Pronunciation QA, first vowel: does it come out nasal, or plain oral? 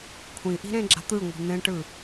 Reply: nasal